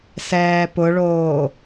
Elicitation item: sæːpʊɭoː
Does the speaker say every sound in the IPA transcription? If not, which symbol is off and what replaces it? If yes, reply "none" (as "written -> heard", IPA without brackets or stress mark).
æː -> ɛː